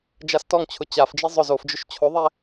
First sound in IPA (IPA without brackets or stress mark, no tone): d͡ʒ